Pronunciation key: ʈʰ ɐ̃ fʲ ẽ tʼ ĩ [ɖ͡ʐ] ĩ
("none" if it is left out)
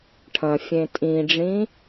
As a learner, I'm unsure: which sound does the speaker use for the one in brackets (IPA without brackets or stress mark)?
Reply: ɖ͡ʐ